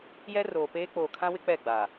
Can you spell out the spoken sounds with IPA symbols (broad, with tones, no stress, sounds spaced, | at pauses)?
j ɛ˦ r oː˨ p eː˦ k͡p oː˨ kʰ ã˦ w ɪ˦ k͡p ɛ˦˨ ɡ͡b aː˨